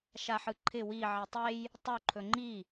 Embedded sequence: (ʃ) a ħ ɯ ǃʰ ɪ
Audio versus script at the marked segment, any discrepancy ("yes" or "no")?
no